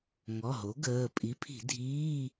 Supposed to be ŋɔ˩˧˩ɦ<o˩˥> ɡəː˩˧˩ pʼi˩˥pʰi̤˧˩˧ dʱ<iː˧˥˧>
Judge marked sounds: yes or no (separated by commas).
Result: yes, yes